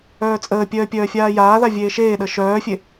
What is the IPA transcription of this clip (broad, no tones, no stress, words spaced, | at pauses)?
œːt͡sʼəːpʲœː pʲœːfʲaːjaːða vʲeːʃeːɗə ʃœːfʲe